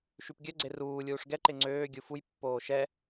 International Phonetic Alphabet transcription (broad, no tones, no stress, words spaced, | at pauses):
ʃypɡʲœɡ͡ǀe ruː lʲuːʂɡɛǃe ŋ͡ǀøː ɡʲufujpːoː ʃɛ